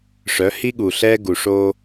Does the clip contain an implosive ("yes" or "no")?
yes